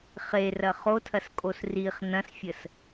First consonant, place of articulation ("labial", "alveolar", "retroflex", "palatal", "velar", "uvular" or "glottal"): uvular